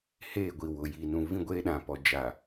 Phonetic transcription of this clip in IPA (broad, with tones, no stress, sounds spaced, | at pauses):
h eː˦˨ ɡʷ i˨ w ʊ˨ j i˨ n ũ˨ v ĩ˦ ɡʷ eː˦ ɗ ã˨ p ɔ˨ d͡ʒ a˨